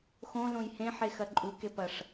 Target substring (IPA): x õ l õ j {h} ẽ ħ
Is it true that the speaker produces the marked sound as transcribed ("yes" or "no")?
yes